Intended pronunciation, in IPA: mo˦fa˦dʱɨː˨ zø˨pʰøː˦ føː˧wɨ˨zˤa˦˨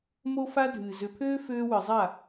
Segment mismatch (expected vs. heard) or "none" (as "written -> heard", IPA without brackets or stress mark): none